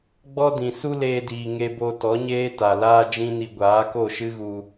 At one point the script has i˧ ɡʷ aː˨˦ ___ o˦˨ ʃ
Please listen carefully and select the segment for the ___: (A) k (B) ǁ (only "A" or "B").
A